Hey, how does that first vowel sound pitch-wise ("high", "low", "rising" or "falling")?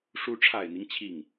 rising